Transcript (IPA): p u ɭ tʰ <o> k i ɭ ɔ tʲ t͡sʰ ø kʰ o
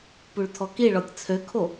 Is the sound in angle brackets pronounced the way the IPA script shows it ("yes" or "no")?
no